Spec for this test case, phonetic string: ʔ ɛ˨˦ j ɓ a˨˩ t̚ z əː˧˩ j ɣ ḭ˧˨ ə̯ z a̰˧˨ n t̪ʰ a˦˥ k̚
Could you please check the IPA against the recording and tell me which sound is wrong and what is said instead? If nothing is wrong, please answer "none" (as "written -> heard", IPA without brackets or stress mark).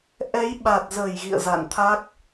none